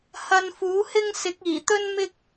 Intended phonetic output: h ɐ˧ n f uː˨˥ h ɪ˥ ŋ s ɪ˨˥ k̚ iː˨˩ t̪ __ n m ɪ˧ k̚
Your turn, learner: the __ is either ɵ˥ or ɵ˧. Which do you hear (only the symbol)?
ɵ˥